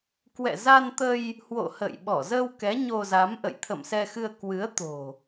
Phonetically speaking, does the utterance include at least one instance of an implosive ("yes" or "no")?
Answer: yes